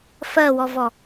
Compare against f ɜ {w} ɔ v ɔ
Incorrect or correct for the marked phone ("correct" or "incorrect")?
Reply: correct